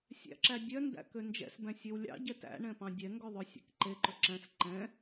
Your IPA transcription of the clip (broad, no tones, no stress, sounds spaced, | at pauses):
sʲ æ̰ ǁ æ dʲ œ n d æ̰ k ø n d͡ʒ ɛ̰ s b æ̃ sʲ ø w lʲ ɑ̰ ɟ ɛ t æ̰ ɳ ɛ̃ p ɑ̃ dʲ ɛ ŋ ɡ œ ðˤ ɵ sʲ æ̰ k ǃ e ǃ ɵ ǁ æ̃ s ǃ ɛ̃